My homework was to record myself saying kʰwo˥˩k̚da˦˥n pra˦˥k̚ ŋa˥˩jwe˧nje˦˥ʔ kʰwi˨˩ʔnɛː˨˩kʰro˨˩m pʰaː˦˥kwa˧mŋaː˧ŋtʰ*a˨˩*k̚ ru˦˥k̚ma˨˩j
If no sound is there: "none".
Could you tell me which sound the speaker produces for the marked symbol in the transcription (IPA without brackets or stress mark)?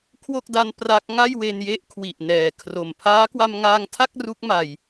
a˥˩